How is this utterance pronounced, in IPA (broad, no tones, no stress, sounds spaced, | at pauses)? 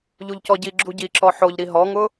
ʎ u ʎ c ɔ ɟ i ɡ͡ǁ u ɟ i ǁ ɔ ħ o ʎ ɾ i ɦ ɔ ŋ ʊ